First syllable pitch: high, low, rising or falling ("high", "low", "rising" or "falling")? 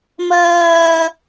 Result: high